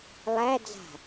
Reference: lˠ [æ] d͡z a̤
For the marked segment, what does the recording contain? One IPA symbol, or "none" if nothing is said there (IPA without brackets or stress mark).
æ